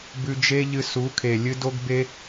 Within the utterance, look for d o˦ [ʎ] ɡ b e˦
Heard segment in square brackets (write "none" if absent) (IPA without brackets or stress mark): none